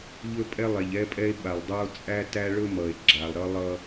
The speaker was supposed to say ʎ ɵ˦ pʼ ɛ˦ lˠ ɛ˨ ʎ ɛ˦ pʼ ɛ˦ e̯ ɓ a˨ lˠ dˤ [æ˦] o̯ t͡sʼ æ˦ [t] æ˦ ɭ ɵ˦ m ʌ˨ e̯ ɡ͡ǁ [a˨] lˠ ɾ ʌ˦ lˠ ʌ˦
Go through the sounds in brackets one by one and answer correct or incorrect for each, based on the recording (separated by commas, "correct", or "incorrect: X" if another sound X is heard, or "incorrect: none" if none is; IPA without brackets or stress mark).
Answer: correct, correct, correct